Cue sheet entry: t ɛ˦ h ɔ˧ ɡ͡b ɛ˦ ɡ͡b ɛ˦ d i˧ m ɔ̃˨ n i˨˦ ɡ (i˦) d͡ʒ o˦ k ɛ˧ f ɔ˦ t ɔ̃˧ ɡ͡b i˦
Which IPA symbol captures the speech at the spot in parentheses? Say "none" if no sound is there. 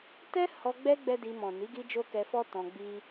i˧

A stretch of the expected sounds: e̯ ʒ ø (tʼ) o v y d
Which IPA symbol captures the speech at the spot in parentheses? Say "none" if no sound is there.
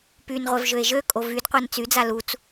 kʼ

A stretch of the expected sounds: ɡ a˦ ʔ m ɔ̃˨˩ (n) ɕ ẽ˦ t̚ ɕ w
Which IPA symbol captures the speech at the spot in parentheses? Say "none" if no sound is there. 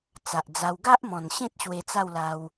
n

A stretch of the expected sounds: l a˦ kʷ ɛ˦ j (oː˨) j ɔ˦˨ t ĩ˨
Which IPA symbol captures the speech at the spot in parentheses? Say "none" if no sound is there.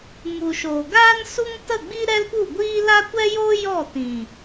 oː˦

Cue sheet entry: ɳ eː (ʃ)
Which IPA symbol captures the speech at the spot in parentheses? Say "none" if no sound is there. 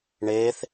θ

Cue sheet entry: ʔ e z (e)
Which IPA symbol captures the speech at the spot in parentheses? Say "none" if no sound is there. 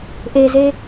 e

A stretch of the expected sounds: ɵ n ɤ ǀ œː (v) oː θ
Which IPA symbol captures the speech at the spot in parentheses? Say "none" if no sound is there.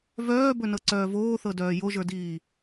v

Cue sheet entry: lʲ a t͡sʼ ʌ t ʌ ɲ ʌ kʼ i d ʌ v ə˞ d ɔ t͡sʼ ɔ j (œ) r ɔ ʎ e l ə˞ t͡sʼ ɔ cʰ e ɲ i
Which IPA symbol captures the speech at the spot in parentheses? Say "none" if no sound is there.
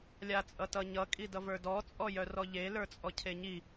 œ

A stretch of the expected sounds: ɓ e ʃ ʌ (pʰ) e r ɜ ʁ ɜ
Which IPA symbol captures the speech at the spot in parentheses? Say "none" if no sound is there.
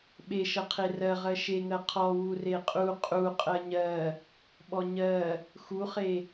qʰ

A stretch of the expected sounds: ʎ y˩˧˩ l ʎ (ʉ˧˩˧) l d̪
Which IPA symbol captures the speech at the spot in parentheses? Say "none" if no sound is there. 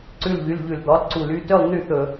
ʉ˧˩˧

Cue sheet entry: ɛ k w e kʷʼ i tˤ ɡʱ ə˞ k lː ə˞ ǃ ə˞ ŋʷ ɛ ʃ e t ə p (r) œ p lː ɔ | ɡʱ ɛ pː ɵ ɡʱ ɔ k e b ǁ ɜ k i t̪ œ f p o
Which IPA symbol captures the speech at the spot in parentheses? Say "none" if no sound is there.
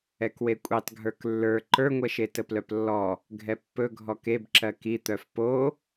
l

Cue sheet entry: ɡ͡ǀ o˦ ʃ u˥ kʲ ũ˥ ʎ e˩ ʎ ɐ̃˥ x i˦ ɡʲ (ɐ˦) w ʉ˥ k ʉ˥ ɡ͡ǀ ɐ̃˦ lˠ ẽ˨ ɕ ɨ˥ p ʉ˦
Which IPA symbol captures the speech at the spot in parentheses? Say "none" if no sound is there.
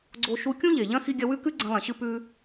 ɐ˦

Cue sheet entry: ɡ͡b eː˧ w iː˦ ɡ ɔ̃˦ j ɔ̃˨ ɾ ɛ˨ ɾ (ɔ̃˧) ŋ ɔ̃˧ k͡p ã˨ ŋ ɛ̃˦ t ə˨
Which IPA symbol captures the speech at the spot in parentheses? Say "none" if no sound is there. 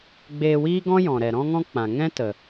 ɔ̃˧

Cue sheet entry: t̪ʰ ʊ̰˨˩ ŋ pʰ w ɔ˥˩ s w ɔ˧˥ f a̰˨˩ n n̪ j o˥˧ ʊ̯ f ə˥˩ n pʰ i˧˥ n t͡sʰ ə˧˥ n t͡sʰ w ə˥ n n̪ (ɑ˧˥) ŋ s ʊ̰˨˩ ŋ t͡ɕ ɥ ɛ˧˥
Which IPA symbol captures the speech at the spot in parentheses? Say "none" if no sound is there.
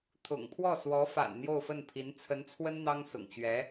ɑ˥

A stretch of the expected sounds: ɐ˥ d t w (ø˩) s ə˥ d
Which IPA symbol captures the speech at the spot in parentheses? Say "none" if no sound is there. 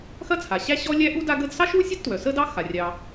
œ˩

